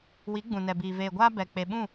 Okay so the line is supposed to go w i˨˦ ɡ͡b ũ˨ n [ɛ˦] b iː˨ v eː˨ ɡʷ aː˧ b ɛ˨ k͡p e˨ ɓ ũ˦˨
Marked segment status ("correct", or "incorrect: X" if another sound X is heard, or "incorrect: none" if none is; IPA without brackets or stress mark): incorrect: ɛ˨